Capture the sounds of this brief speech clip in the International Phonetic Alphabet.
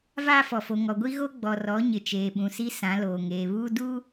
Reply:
v aː˦ f ɔ˨ f o˨ ŋ ɔ˨ ɡʷ i˦ ɣ o˦ ɡ͡b ɔ˨ r ɔ˨˦ ɲ ɪ˨ t͡ʃ eː˨ ɓ ũ˨ s i˦ s ã˨˦ l oː˨ ŋ eː˨ β uː˦ d uː˦

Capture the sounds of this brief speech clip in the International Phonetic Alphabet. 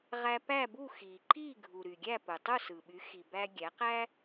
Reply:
ʁ æ˧ p æ˥˩ b u˥˩ x i˩ ǃ i˥˩ ɡʱ u˩ ɾ y˩ ɡʲ æ˥˩ p ɯ˩ tˤ u˥˩ s ɯ˩ ɓ y˩˥ x i˩ b æ˧ ɡʲ æ˩˥ q æ˥

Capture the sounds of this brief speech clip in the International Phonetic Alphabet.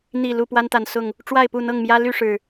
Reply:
n̪ i˨˩ l u˥˨ p w a˦ n t̪ a˨˩ n s ʊ˥˨ ŋ | ʈ͡ʂ w a˥˨ ɪ̯ p u˥˨ n̪ ɤ˥˨ ŋ m j ä˦ l y˥˨ ʂ ɻ̩˨˩

